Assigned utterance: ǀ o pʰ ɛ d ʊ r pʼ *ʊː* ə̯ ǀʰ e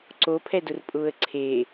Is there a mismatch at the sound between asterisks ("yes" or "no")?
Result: no